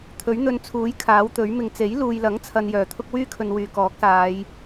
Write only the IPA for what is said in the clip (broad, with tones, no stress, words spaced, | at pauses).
t̪ʰɵ˨˥ɥn̪ɵ˧nt͡sʰuː˨˥j kʰaː˨˥wt̪ɵ˨˥ɥmɪ˧ŋ t͡se˨˥jluː˨jlɐ˨˥ŋt͡sʰɐ˨n jœː˨˩t̪ʰʊ˥k̚ wyː˥kʰɵ˨nwyː˨˩ kɔː˨˥k̚saː˨˧j